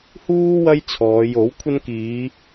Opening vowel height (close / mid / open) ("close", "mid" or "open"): close